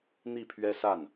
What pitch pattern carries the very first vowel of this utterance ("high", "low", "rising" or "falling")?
falling